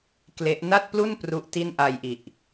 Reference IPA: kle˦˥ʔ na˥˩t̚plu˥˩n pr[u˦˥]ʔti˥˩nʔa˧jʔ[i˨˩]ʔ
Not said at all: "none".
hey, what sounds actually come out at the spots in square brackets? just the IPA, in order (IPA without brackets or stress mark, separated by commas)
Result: u˦˥, i˨˩